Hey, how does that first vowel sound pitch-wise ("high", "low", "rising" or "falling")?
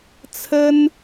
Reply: high